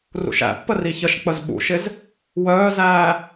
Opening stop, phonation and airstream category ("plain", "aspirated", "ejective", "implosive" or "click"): plain